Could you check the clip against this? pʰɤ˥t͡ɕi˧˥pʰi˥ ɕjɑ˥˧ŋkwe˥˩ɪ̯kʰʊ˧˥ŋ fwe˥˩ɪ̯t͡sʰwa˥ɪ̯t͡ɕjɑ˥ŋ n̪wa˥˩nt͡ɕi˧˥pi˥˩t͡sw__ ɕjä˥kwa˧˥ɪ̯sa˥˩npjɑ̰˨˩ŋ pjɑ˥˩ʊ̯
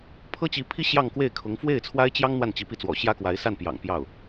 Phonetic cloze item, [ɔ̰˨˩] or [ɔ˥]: ɔ̰˨˩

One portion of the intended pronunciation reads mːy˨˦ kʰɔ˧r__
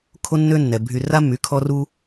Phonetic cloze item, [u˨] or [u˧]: u˧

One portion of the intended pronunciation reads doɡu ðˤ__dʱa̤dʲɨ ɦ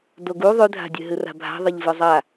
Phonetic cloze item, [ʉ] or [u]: ʉ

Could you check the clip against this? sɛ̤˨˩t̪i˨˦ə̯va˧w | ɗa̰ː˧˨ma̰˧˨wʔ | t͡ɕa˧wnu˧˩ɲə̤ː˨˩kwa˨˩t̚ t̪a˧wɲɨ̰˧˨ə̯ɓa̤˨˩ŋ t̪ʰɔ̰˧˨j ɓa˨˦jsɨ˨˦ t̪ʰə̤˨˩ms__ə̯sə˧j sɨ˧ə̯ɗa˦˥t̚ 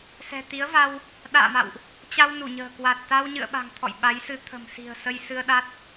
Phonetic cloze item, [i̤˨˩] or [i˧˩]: i̤˨˩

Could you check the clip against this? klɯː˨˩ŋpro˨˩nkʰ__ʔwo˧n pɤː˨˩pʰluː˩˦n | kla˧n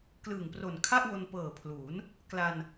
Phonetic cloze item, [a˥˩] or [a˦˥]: a˥˩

